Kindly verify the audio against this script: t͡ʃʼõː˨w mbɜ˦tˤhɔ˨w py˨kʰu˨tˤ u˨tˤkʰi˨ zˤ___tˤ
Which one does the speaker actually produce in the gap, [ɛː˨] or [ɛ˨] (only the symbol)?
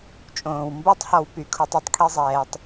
ɛː˨